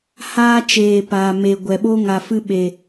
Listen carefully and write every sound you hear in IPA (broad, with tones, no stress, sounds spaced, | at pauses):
h aː˧ t͡ʃ eː˨ p aː˨ m e˨ ɡʷ ɛ˨ ɓ o˦ ŋ a˨ f ɨ˧ ɓ e˨